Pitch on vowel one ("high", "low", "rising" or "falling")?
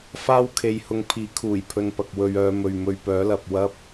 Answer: high